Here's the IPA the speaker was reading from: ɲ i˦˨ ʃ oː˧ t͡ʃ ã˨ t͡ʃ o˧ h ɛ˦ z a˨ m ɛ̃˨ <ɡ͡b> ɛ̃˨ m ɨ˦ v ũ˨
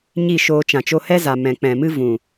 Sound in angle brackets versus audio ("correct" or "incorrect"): incorrect